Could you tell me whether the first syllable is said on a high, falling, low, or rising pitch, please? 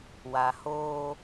low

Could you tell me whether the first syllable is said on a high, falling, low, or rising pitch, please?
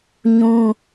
high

